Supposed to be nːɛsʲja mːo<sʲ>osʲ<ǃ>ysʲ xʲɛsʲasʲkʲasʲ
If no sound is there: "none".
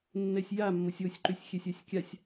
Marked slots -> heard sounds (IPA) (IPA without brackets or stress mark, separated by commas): sʲ, ǃ